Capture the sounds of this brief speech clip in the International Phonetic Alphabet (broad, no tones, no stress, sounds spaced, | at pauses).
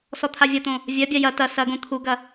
s ɔ t̪ʰ a vʲ ɐ t̪ õ | vʲ ɜ bʲ a j ɐ t ɐ s ɐ ɡ õ t̪ʰ u ɡ ɐ